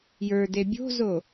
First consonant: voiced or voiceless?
voiced